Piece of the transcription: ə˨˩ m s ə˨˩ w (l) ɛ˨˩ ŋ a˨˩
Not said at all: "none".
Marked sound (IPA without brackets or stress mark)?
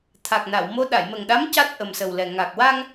l